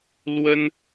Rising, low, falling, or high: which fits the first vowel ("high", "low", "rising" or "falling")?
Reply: high